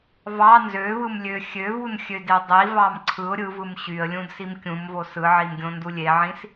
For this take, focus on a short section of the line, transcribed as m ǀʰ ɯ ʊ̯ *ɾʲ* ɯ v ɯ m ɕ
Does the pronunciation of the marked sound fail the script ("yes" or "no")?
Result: no